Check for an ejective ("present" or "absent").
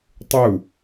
absent